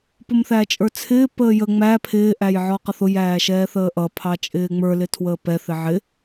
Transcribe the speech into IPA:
p ʊ m θ æ t͡ʃʼ ə˞ t͡sʰ ɪː p əː j ə ŋ͡m æ pʰ ɪː ʔ æ j ʕ ɔ q ʌ θ ʊ j æː ʃ ɛː θ əː ʔ ʌ pʰ ɑ t͡ʃʼ ɪː ŋ͡m ə˞ l ɪ tʰ w əː p ɛ θ ɪ ʕ ɪ

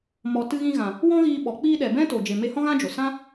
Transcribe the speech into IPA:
m ɔ˨ t ɨ˧ ɣ ĩ˧ ɣ ã˨ | w ɔ̃˦ ɣ iː˧ ɓ ɔ˨ k͡p iː˧ ɗ ɛ˨ b ɛ̃˦ t o˨ d͡ʒ e˨ m e˧ h ɔ̃˦ ɣ ã˦ d͡ʒ o˨ s ã˦

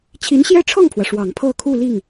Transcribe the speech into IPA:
t͡ɕʰ i˧˥ n ɕ j ɛ˥ ʈ͡ʂʰ ɤ˥˩ ŋ pʰ w ä˩ ʂ w ɑ˨˩ ŋ pʰ ɤ˥˧ kʰ u˥˧ l i˥˩ ŋ

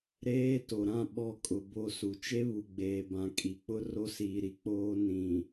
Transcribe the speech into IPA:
ɾ eː˦ t o˨ ɾ ã˦˨ ɓ ɔ˦˨ kʼ ʊ˨ b o˦ s u˨ t͡ʃ e˦ β u˨ ɡ͡b eː˨ b ã˨ kʼ i˨ k͡p ʊ˦ r o˦ s iː˨ ɾ i˨ k͡p oː˦ n ĩ˨

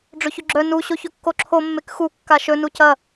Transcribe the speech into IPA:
ɖ͡ʐ ɵ ç ɵ ɡ͡ǁ œ n u ɕ o ç ɵ kː o ǁʰ o mː e k x u kː a ʃ ɵ n u c ɐ

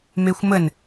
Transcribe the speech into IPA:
m e xʷ m ə n

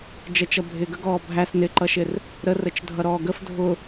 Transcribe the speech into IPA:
d͡ʒ ɜ t͡ʃ ʌ bʱ ɪ ɡ ə ɡ ɔː bʱ æ s n ɪ ǃ ʌ ʃ ɪ r | ɾ ə r ə t͡ʃ dʱ ʌ ɾ ɔː ɡ ə f dʱ ʊ

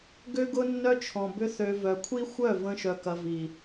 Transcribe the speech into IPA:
ɡ ø˦ ɡ ʊ˦ nː œ˦ t͡ʃʰ ɔ̃˨ b ʏ˦ θ ø˧ v œ˨ kʷʰ i˦ xʷ œ˦˨ v ə̃˧ ʃ œ˧ k ɐ˧ v i˨

